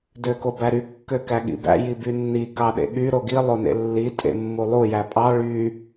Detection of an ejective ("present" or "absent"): present